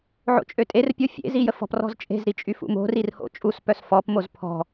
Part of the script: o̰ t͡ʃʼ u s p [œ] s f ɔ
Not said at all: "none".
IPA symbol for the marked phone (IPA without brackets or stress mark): œ